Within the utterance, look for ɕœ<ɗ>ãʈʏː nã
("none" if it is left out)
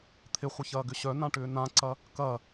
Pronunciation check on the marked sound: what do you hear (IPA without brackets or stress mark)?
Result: n